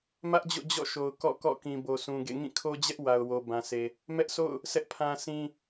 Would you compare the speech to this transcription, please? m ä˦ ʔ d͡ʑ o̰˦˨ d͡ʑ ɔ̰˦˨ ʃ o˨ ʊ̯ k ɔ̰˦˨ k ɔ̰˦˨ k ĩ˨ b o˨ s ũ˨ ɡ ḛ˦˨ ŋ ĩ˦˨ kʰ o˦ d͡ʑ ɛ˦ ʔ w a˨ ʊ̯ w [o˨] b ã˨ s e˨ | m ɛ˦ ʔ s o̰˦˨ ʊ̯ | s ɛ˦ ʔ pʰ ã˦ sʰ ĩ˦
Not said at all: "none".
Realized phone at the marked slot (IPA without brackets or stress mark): o˨